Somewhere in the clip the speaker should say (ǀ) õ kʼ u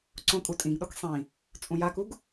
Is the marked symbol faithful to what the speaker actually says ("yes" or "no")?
yes